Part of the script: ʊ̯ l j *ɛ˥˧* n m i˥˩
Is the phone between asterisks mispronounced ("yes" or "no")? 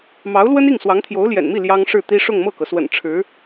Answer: yes